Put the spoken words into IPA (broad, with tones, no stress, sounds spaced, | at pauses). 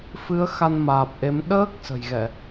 f ɨ˨˦ ə̯ x a˧ n m aː˨˩ p̚ ʔ e˨˦ m ɗ əː˦˥ k̚ s ə̤˨˩ j ɣ ɛ˧˩˨